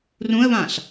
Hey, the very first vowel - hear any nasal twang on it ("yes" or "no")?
yes